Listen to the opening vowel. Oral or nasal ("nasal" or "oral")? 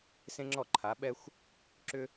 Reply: nasal